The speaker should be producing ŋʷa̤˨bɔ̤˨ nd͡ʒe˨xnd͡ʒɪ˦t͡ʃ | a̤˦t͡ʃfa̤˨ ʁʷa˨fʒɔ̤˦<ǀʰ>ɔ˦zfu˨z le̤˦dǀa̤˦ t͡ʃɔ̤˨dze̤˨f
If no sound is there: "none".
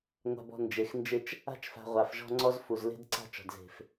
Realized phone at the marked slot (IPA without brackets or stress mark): ŋ͡ǀ